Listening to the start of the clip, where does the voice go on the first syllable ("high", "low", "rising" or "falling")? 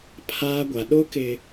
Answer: high